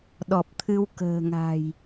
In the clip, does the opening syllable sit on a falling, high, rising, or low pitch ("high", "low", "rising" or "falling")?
low